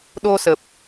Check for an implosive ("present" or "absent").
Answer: present